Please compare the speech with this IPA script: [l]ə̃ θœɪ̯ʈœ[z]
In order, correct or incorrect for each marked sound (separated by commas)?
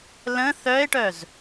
correct, correct